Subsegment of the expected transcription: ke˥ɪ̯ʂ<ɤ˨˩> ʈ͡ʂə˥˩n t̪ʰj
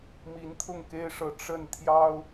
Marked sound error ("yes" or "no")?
yes